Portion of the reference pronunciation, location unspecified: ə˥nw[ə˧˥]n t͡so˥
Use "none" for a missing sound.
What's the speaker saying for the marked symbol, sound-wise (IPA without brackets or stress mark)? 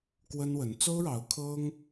ə˧˥